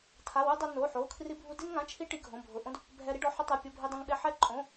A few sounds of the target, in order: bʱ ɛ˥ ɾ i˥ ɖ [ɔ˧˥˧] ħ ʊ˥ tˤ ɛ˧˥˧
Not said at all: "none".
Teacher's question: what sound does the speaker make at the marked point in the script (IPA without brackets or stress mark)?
ɔ˧˥˧